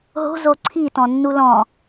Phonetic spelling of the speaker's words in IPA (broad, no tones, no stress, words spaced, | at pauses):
ɦo̤ zoǀʰi tɔ̃nːulɔ̃